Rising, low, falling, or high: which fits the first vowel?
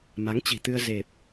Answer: rising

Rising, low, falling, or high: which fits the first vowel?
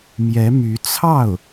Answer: rising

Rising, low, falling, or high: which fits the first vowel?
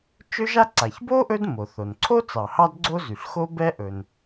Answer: high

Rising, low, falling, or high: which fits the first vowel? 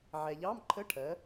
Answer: low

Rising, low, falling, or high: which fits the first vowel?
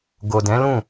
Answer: low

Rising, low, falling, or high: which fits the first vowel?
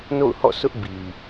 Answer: falling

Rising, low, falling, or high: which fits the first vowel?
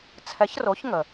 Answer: rising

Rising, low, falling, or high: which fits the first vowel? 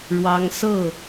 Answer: high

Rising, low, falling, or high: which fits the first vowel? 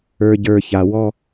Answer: low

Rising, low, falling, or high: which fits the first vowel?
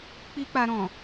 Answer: high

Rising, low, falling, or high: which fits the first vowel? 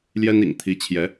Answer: high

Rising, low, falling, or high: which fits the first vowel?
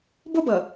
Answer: high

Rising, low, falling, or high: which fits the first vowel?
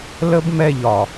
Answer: high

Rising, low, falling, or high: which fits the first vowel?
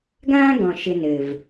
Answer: high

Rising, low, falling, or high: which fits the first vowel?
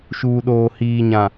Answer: low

